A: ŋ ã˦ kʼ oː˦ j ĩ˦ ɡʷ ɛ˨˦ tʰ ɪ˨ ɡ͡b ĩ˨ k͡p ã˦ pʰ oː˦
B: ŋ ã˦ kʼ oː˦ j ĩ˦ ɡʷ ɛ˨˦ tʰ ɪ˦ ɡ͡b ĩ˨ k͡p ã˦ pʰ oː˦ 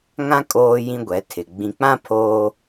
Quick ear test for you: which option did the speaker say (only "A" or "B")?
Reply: A